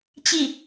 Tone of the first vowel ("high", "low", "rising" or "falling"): falling